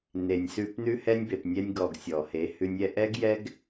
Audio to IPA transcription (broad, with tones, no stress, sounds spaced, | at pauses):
n e˨ nʲ s ʉ˧ p n ʉ˧ h ɛ˧ nʲ b e˨ p nʲ ɛ˧ nʲ ɡ ɔ˨ ɡ sʲ ɔ˨ h e˨˦ h ʉ˧ nʲ ɛ˧ ʔ ɛ˦ ɡ j ɛ˦ ɡ